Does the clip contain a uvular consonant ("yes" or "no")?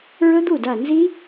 no